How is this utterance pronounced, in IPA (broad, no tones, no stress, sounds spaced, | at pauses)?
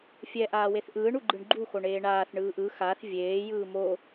fʲ ɛ ʔ aː w e θ ʔ ɯː ɳ u ɡ͡ǃ ɯ ɳ ɡ͡ǃ u x o ɳ eː ɳ aː θ ɳ ɯː ʔ ɯ x a θ vʲ eː j ɯː m o